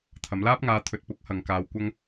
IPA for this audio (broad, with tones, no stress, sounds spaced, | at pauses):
t̪ʰ ɐ˨˧ m l aː˥ p̚ ŋ aː˧ t̪ʰ ɵ˨ t̚ p ʊ˨˥ k̚ h ɐ˨˧ ŋ k aː˧ w kʷ ɐ˥ ŋ